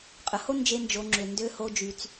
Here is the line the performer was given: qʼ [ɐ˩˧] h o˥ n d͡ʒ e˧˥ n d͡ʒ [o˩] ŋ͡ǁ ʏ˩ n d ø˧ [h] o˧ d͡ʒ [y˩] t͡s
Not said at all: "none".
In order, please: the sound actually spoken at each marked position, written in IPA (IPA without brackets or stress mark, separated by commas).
ə˩˧, o˩˧, h, y˩